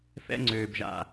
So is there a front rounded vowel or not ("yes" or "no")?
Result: yes